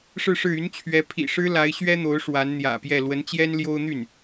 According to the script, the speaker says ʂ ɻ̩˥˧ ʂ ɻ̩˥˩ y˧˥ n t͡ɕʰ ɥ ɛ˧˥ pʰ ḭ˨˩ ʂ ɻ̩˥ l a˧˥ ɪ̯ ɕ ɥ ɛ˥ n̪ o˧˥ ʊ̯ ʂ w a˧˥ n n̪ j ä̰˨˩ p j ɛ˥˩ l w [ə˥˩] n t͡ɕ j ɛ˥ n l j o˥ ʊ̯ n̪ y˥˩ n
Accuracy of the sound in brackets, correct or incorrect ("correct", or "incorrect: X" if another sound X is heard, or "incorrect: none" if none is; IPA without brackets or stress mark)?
incorrect: ə˧˥